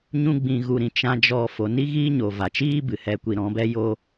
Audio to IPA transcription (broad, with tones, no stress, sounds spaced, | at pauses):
ɲ ũ˦ ɡ͡b ĩ˧ ɣ u˧ ɾ ĩ˧ t͡ʃ ã˦ d͡ʒ ɔ˦ f o˧ n i˦ ɣ iː˦ ɲ o˨ v a˨ t͡ʃ iː˦ b ɨ˨ h ɛ˦ kʷ i˦ ɾ ɔ̃˨˦ b ɛ˦ j o˦